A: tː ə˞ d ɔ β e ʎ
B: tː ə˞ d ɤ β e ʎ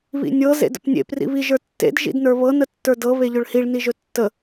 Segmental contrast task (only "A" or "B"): B